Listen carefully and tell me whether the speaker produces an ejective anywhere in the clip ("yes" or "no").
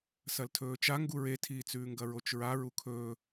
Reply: no